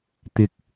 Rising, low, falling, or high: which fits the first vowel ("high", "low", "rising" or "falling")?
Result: rising